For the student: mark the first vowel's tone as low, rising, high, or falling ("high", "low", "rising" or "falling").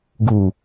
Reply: low